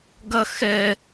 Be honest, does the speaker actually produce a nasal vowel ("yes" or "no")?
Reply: no